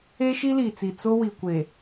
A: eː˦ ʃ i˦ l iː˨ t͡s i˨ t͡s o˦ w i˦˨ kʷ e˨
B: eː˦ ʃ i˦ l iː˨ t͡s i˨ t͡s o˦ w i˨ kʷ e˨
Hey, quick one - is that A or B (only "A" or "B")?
B